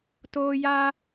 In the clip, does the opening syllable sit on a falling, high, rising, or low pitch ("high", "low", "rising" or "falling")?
high